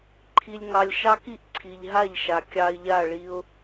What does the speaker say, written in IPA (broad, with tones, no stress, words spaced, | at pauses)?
ǃʰi˨lʲ ŋɑ˨lʲʃɑ˦ki˦ʔ ǀʰi˨ʎɦa˦˨ʎʃa˨ kʲɑ˨ɪ̯ ʎa˦˨ɭi˦ʊ̯